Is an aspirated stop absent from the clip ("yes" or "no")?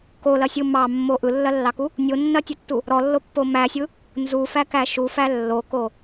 yes